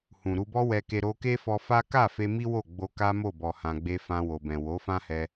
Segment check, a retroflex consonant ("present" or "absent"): absent